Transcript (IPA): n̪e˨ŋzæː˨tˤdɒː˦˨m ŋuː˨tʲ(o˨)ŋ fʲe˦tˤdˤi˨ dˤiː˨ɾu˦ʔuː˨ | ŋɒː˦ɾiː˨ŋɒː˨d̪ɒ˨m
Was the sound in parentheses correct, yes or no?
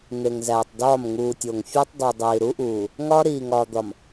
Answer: yes